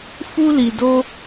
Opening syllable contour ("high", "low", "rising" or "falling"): high